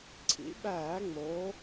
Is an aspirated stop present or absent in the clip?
present